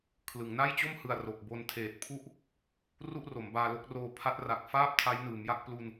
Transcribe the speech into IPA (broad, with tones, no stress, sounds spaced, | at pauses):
kʰ l ɯ˩˦ ŋ n a˥˩ j t͡ɕ o˥˩ m h ɯ˨˩ a̯ r o˨˩ k̚ b o˧ n tʰ eː˨˩ t̚ pʰ u˥˩ ʔ | r u˥˩ ʔ r o˩˦ m b aː˧ l o˦˥ k̚ r oː˧ pʰ a˦˥ t̚ r a˨˩ k̚ f aː˥˩ p̚ tʰ a˦˥ j n ɯː˩˦ m j a˥˩ k̚ p l u˧ n